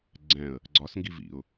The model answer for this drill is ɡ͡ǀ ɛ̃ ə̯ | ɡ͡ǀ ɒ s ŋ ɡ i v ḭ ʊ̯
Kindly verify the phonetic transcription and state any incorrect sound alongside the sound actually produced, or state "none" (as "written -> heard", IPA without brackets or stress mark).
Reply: none